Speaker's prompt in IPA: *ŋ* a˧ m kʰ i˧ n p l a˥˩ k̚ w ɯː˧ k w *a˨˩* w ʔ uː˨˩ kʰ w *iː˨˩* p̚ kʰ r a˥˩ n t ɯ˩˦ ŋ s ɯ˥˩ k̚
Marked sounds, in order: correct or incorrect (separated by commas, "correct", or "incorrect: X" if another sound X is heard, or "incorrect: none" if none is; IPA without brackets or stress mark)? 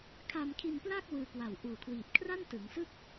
incorrect: kʰ, correct, correct